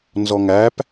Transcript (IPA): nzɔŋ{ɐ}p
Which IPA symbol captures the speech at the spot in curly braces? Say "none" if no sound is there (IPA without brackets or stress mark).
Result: æ